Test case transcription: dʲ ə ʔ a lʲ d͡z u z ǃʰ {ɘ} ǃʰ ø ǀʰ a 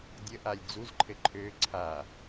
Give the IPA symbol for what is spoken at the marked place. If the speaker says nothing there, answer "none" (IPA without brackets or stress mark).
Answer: ɘ